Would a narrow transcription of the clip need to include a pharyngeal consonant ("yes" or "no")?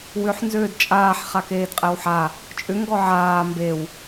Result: yes